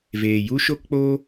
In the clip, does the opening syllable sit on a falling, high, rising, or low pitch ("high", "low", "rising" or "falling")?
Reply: low